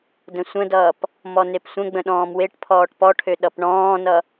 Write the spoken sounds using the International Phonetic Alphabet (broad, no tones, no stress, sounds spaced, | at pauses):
d ə̃ sʷ ə̃ d ʌː p | m ɔ n e p sʷ ə̃ ɡ͡b ə̃ ɗ ɔ̃ː m w e ʈ pʰ ɔː ʈ p ɔ ʈʰ ø ɗ ʌ p ɳ ɔ̃ː n ʌ